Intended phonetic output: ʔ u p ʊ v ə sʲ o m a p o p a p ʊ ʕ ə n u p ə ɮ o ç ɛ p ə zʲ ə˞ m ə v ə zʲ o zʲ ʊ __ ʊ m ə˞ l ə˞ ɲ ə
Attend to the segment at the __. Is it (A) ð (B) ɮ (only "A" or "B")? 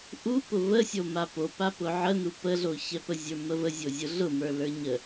B